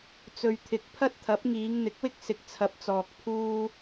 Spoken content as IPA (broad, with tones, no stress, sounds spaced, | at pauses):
t͡s ɵ˨ ɥ t̪ʰ ɪ˨ k̚ pʰ ɐ˥ t̚ t̪ʰ ɐ˨˥ p̚ ŋ iː˨˧ ŋ n̪ ɪ˨˥ k̚ w ɪ˥ k̚ s ɪ˨ k̚ t͡sʰ ɐ˨ p̚ t͡s ɔː˨ k̚ pʰ uː˥